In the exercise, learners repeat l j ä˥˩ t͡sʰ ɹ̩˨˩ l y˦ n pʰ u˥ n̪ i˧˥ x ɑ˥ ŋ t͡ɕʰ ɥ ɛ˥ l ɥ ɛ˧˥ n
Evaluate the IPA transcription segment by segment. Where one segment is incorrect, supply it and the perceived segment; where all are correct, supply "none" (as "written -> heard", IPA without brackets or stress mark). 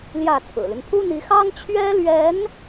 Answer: none